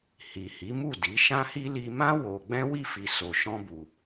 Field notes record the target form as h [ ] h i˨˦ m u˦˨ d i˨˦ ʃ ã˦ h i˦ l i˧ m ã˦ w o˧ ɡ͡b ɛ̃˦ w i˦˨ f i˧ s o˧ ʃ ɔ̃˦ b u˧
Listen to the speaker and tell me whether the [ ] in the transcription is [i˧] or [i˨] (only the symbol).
i˨